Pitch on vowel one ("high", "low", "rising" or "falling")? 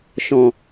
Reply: low